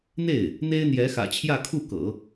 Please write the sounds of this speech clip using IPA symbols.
n̪ e˥˩ ɪ̯ | n̪ e˥ ɪ̯ n̪ j ɛ˧˥ x ä̰˨˩ t͡ɕʰ j ä˥˧ kʰ u˥˩ k ɤ̰˨˩˦

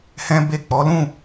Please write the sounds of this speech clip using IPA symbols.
h ɛ̃˦ b e˦˨ k͡p ɔ˨˦ l ũ˦˨

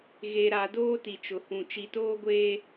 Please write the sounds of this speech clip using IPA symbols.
ɣ e˨ ɾ a˨ d oː˦ t i˨ t͡ʃ ʊ˨ h ũ˨ t͡ʃ i˨ t oː˦ ɡʷ eː˨

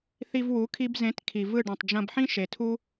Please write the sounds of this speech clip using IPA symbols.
θ i˧ v w u˨˦ kʰ i˧ b z ẽ˨˦ t kʰ i˨ v ɯ˦˨ ɖ ĩ˨ tˤ d͡ʒ ɐ̃˧ b ħ ĩ˦ ʃ e˨ tʰ u˦

